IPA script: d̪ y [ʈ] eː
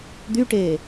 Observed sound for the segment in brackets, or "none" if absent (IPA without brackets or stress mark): ʈ